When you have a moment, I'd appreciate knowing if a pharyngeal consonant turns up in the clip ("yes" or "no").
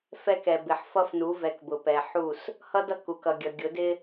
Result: yes